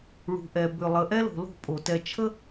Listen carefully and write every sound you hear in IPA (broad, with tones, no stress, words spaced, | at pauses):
ɭṳ˨ʔɛ˨ bʏ˧lˠə˧ ʔɛ˦lo̤˨lo̤˦˨ pʼo˨tɛ˧ t͡ʃʰə˦